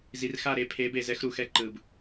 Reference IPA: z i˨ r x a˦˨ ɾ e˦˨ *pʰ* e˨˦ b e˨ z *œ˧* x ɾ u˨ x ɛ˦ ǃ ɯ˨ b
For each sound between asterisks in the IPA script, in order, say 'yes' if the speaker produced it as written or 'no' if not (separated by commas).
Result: yes, no